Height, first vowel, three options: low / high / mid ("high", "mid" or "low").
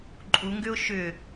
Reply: high